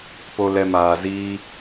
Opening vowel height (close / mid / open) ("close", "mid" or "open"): mid